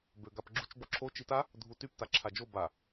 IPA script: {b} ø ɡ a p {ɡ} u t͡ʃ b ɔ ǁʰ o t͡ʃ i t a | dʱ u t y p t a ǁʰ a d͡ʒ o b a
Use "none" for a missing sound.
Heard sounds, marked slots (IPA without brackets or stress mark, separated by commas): b, ɡ͡ǁ